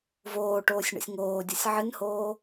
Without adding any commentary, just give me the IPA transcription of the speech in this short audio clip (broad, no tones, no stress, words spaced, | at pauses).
voːʈoːsʲɳə̰sʲ ŋoːdʲəsʲ ʕɨnhoː